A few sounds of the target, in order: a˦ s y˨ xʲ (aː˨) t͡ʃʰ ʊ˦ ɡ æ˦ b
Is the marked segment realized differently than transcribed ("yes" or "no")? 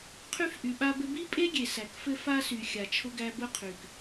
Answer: yes